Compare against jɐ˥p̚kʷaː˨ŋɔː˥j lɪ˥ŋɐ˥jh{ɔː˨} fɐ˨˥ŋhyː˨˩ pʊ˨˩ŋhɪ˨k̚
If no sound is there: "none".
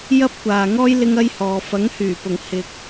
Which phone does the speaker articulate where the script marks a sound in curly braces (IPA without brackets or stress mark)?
ɔː˨